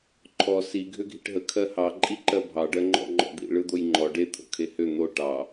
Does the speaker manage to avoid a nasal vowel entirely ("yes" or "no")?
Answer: yes